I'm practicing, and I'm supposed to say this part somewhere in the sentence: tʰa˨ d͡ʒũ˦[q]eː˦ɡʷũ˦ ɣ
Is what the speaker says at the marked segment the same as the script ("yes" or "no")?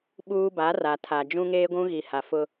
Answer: no